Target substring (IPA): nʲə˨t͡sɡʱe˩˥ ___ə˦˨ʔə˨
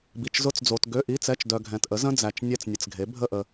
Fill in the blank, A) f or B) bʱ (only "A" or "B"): B